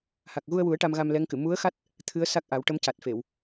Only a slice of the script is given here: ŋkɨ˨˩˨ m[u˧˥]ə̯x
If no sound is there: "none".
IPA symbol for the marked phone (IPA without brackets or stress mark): u˧˥